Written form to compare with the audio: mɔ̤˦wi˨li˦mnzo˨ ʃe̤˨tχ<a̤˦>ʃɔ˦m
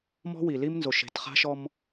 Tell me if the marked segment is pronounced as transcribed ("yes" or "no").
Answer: yes